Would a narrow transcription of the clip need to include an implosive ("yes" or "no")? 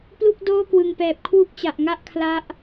no